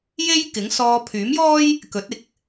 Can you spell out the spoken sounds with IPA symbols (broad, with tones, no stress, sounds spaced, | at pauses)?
j e˥ j k ɪ˨˥ ŋ s ɔː˧ pʰ yː˨˥ m j ɔː˥ j | k ɵ˨˥ t̚ ɪ˨˥ k̚